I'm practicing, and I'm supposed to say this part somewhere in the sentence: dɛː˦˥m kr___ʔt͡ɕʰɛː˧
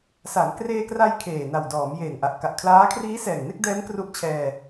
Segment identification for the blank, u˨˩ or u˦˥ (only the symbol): u˦˥